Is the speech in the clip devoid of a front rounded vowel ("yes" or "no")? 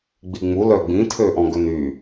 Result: no